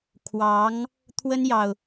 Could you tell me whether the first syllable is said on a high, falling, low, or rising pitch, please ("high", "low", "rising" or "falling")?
rising